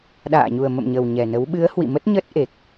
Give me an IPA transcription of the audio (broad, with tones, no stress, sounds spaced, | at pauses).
ɗ a̰ː˧˨ ɲ u˨˩ ə̯ m ə̰˧˨ m ɲ ə˨˩ w ɲ ɛ˨˩ n ə˨˦ w ɓ ɨ˨˦ ə̯ h w ḭ˧˨ m ə˦˥ t̚ ɲ ə˦˥ t̚ ʔ e˨˩ k̚